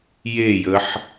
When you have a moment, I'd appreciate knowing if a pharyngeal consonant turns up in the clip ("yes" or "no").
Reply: yes